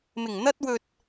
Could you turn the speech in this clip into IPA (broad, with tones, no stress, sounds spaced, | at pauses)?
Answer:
m ɪ˨˩ ŋ n̪ ɐ˥ t̚ w ɵ˧ t̚